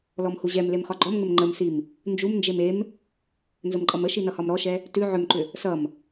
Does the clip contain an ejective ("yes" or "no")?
yes